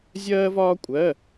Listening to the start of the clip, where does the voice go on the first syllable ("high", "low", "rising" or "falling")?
high